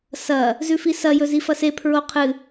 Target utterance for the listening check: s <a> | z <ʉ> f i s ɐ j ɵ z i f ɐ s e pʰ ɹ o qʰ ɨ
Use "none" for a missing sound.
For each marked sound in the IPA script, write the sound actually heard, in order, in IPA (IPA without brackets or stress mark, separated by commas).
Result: ɐ, ʉ